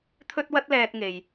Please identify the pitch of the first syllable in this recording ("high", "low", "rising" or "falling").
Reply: high